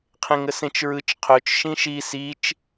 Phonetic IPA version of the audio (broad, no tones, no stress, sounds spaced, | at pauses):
qʰ ẽ ŋ ə s ẽ t͡ʃ ɹ ɯ t͡ʃ qʰ ɵ t͡ʃ ʃ ĩ ʃ i s i t͡ʃ